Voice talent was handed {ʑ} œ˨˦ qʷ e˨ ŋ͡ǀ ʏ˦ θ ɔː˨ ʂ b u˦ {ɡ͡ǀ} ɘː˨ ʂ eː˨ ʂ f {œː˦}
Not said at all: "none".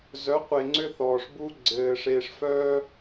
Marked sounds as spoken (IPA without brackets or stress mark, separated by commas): z, ɡ͡ǀ, œː˦